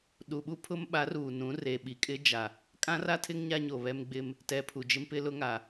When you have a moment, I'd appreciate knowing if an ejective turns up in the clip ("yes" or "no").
yes